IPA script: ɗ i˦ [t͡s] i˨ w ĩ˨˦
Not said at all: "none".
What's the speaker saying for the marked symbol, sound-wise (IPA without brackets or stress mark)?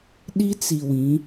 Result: t͡s